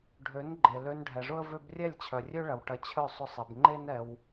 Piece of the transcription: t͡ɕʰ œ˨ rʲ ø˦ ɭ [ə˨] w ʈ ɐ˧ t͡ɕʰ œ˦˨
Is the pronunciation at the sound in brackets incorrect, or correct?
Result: incorrect